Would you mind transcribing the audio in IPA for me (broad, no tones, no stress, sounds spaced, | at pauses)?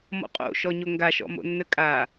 m ɔ̰ qʼ o̰ ʃ ɔ ɲ o ŋ ɡ a ʃ ɔ̰ m o̰ nː ə kʼ a